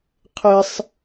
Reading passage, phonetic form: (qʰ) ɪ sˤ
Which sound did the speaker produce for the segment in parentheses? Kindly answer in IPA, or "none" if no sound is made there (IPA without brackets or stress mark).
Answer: qʰ